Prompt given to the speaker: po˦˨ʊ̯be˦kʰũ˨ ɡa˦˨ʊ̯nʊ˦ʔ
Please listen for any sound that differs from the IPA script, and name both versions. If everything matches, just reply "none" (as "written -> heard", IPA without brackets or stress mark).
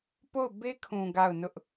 none